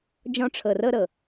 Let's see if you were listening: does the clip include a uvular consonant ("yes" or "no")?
no